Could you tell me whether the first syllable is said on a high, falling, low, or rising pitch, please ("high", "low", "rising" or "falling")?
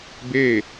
falling